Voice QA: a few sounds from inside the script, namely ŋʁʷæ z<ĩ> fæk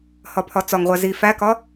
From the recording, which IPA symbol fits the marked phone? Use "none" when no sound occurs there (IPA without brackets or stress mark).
i